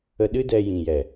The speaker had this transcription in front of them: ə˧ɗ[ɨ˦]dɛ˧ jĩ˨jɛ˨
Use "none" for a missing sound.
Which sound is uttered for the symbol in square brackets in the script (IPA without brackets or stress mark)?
ɨ˦